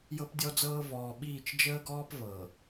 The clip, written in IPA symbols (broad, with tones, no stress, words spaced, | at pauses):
jɤ˦pdʲɔ˦d͡zɤː˦ vɔː˨ɓiː˦˨t͡ʃ d͡ʒəː˦ɡɔː˦p vɤ˨